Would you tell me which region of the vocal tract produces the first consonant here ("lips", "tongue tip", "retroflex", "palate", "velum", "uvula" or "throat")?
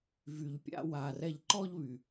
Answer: lips